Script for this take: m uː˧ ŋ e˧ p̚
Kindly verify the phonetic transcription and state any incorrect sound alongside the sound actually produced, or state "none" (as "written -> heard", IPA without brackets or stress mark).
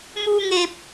none